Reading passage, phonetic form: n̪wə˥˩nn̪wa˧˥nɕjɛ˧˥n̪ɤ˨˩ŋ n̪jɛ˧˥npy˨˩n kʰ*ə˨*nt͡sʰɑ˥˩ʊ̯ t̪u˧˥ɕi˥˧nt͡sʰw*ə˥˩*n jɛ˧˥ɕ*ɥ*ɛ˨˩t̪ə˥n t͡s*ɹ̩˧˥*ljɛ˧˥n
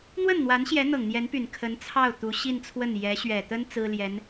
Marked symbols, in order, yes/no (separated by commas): no, yes, yes, no